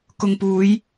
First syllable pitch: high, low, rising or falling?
low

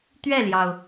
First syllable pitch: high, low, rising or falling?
falling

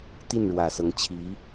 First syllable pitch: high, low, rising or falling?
falling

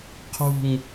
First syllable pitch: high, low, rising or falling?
falling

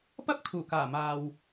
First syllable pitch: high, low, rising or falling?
high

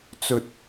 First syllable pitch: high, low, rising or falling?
low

